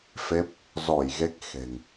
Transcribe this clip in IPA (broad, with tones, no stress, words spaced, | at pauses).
fe˦˥p̚ | zɔ˧˩j ɣe˦˥k̚ xe̤˨˩ŋ